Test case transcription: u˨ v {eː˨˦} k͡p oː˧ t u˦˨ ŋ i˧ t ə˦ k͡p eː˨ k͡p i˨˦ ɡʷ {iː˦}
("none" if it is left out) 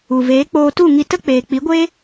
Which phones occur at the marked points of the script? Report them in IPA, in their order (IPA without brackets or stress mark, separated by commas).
eː˨˦, eː˦